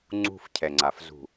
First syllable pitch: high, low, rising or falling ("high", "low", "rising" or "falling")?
falling